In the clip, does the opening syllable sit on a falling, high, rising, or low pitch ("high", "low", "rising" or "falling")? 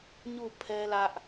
falling